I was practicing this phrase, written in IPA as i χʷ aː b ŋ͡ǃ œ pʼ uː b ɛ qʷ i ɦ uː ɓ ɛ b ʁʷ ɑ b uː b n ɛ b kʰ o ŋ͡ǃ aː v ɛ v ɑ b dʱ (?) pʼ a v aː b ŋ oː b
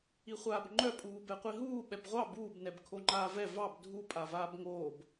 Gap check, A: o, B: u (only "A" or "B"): B